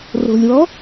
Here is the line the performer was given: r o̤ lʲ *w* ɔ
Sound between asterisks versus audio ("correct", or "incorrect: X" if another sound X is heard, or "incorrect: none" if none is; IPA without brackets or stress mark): correct